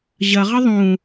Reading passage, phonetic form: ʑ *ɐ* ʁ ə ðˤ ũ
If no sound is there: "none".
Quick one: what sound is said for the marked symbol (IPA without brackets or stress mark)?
ɐ